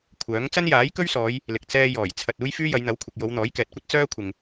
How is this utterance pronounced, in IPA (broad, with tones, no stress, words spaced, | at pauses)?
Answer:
kʷʰœː˨˥ŋ t͡sɐ˥njaː˨˥jkɵ˥ɥsɔː˨˧j | lɪ˨k̚ t͡sɛː˧jɔː˨˩j t͡sʰɐ˨t̚ uː˥jfyː˥ jɐ˨˧jn̪ɐ˨˥wkʷʰɪ˨k̚ jo˨˧wn̪ɔː˨˥jkɛː˨t̚kʷɐ˥t̚ t͡sœː˥kʷʰɪ˨ŋ